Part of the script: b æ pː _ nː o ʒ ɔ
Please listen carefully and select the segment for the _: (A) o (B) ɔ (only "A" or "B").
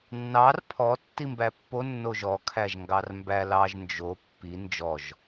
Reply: A